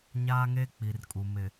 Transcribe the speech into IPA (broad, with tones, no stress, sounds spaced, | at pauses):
ɲ aː˦ ŋ eː˦ k͡p i˨ r kʼ u˨ m ɪ˨